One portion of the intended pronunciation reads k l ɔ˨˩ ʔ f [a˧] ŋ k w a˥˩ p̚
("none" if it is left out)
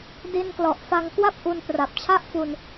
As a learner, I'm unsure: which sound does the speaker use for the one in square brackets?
a˧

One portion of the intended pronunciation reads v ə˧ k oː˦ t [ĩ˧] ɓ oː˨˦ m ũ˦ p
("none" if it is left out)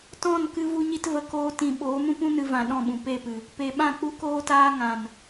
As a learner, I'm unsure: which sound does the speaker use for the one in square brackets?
ĩ˧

